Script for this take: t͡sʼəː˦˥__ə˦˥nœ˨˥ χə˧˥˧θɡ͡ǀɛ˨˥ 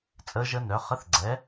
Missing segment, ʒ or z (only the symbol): ʒ